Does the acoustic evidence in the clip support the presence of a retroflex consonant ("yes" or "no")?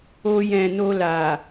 no